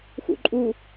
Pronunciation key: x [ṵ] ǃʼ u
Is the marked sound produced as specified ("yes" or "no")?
yes